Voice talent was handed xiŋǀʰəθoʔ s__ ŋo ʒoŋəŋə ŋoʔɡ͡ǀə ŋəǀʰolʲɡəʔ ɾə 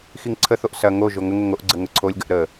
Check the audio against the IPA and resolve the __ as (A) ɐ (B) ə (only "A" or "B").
A